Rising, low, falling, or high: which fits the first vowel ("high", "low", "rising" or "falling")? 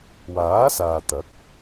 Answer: rising